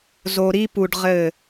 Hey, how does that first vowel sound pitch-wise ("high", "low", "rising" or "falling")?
low